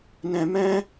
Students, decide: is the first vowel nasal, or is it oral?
nasal